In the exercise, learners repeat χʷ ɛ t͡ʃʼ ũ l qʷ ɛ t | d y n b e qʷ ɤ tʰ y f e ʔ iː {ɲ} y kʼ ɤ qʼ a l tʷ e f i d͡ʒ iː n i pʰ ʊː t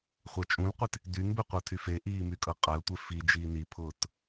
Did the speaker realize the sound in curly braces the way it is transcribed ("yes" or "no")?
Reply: no